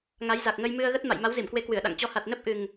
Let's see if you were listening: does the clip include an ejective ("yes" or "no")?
no